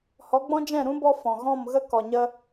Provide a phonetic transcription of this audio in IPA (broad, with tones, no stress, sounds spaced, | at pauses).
h ɔ˨˦ ɡ͡b ɔ̃˦ d͡ʒ ɛ̃˦˨ ɾ ũ˦ b ɔ˧ f ɔ̃˨ ɣ ɔ̃˦˨ m ɣ ə˧ k ɔ˨ ɲ ə˧